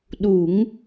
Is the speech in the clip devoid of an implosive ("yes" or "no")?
no